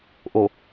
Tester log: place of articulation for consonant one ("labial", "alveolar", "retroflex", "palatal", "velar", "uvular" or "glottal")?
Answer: glottal